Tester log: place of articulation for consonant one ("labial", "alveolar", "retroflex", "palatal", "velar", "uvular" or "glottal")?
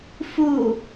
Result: labial